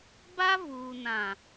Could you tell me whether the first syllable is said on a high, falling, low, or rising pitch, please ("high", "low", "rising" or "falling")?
high